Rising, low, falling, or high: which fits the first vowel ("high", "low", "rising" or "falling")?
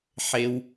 high